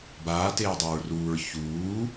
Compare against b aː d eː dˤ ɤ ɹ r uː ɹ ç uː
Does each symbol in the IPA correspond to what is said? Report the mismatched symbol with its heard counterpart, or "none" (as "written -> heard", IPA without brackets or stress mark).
d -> t